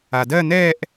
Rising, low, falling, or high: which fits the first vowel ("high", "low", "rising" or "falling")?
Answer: low